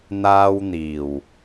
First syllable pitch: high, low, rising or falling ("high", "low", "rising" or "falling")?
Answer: high